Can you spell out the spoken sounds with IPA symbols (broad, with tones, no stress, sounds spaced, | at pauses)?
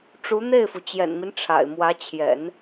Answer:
ʈ͡ʂ u˧˥ n̪ e˥˩ ɪ̯ f u˩ t͡ɕ j ɛ̰˨˩ n m i˦ n ʈ͡ʂʰ a̰˨˩ ɪ̯ m w ä˧˥ t͡ɕʰ j ɛ̰˨˩˦ n